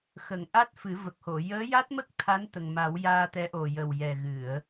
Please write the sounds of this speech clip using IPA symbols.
x ə˨˩˨ ŋ ʔ a˦˥ t̚ f ɨ˨˩˦ v ə˨˩ k̚ h o˨˩˨ j əː˧˥ j a˦˥ t̚ m ə˦˥ k̚ t̪ʰ a˧˥ n t̪ ə˨˩ ŋ m a˨˩˦ w j aː˧ t̪ ɛ˧˥ ʔ o˨˩ j ə˨˩ w j ɛ˨˩ ɣ ɨ˨˩˨ ə̯

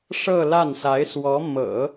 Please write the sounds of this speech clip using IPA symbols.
ʂ ɤ˥˧ l a˥˩ n s a˧˥ ɪ̯ s w ɔ˧˥ m ɤ̰˨˩˦

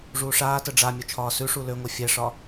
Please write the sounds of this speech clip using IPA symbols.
ʐ uː ʂ aː t ə ɖ͡ʐ a mʲ o t͡ʃʰ ɒː s ʉ ʂ u l ø ŋʷ ɛ fʲ ɛ ʂ ɒː

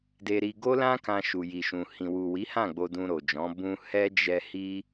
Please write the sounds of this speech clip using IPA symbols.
d e˧ ɾ i˧ ɡ o˦ l ã˦ k ã˧ ʃ u˨ j i˨ ʃ ũ˨ h ĩ˨ w u˨ w i˨˦ h ã˦˨ ɡ͡b o˧ d ũ˧ ɾ o˨ d͡ʒ ɔ̃˨˦ b ũ˧ h ɛ˦ d͡ʒ ɛ˧ h i˦

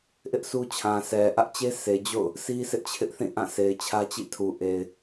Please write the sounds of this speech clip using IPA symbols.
ʔ ɪ˦ ʔ sʰ u˦ t͡ɕʰ ã˨ s ɛ˨ ʔ ä˦ ʔ t͡ɕ e˦ sʰ e˨ d͡ʑ o̰˦˨ ʊ̯ | sʰ i˦ s ɪ˦ ʔ t͡ɕʰ ɪ˦ ʔ θ ĩ˦˨ ʔ ã˦˨ sʰ e˨ ɪ̯ t͡ɕʰ ä˦ t͡ɕ ḭ˦˨ tʰ u˨ ʔ e˨ ɪ̯

